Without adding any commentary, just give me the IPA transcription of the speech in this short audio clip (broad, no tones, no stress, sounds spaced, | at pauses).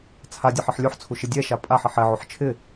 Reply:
t͡sʰ a dʲ a ħ ɪ ħ lʲ u ħ t͡sʰ u ʃ ɪ dʲ ɛ ʃ a pʼ a ħ e ħ ɛ ʕ o ħ t͡ʃʰ ɪ